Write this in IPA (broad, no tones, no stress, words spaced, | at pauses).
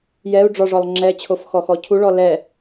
jɛu̯ ɖ͡ʐɔʐɔlˠ ŋ͡ǁɛt͡ɕʰofxɔxɔ cʰuɭɔ lɛ